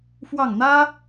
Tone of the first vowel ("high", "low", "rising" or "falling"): falling